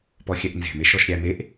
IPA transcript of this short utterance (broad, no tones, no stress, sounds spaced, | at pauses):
p ɔ xʲ ɛ ʔ n z e̤ m e ʃ ɔ ʃ ɾʲ æ m e ʔ